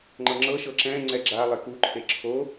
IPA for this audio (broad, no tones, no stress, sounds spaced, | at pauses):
ŋ͡ǃ ɤ ŋ͡ǁ ɤ ʃ ɤ ǁ ɛ̃ ŋ͡ǀ ɛ ɡ͡ǁ a lˠ e k u ǃʰ e ǁʰ o